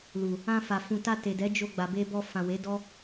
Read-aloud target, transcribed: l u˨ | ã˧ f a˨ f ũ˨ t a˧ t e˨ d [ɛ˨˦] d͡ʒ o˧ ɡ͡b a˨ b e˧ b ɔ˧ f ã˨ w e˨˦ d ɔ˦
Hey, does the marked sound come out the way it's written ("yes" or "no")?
yes